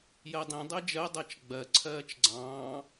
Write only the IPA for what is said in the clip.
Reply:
jɜdˤĩ dˤɛd͡ʒɜ dˤɜt͡ʃɡ͡bɜ ǀʰɜːt͡ʃɡ͡ǀɑ̃ː

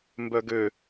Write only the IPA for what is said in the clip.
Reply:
mbœɡø

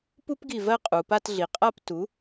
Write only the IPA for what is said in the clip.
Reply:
pu˥pɡi˧˩vɜ˥˧ qʼu˩˧pa˥˧tɮi˩˧ qʼa˥˧p tu˩˥

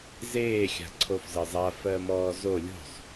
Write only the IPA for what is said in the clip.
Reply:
zeː xʲa̤ǀʰofzɜzˤa fɜmɔːzo lʲo̤sˤ

